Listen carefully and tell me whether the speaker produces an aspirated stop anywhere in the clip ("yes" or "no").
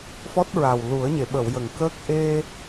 no